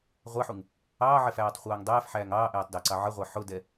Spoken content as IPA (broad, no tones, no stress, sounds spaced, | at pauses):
ʁʷ æ ħ u ŋ | ɑː ʕ ɛ f æː tˤ χʷ ɑː ŋ dˤ ɛː f ħ æː ŋ ɑː ʔ ɛː tˤ d æ ǀ ɑ ʕ ə ʁʷ e ħ ʊ d ɛ